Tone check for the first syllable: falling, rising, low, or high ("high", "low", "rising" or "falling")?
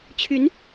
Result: rising